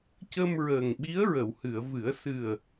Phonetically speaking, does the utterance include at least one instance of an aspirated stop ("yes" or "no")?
no